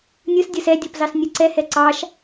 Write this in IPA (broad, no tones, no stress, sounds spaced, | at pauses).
nʲ ɯ s dʲ ə˞ s ɛ dʲ ɔ p z ɑ s nʲ ɯ ǀ ɛ h ɛ ǀ ɑ ʃ